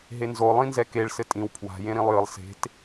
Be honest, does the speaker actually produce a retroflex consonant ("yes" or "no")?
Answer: yes